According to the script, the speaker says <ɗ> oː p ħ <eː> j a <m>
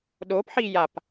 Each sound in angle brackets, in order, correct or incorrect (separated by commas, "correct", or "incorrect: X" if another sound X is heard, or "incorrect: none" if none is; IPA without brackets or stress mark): correct, incorrect: iː, incorrect: p